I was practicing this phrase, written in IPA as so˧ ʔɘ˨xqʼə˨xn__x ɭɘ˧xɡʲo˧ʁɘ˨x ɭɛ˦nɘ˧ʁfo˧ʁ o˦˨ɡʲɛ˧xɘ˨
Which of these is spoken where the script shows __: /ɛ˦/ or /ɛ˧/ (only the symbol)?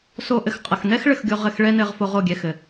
ɛ˦